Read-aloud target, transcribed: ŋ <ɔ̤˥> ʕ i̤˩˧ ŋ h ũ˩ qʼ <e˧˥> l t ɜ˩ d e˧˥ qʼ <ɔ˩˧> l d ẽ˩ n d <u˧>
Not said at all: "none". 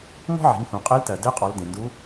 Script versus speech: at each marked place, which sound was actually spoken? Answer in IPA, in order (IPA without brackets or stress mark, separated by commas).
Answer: ɔ̤˥, e˧˥, ɔ˩˧, u˧˥